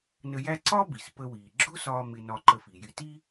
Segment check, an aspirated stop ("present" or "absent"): absent